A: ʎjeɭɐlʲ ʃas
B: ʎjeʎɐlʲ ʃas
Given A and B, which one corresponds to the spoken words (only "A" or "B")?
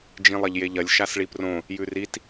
B